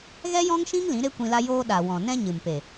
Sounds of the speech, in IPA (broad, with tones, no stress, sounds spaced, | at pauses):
ɣ ɛ˦ j ɔ̃˦ ŋ ʃ ĩ˦ ŋ l ĩ˨˦ ɾ e˦ kʷ ĩ˧ l a˧ j oː˧ ɗ a˨ w ɔ̃˨ n ɛ̃˦ ɲ ɨ˨ m p e˨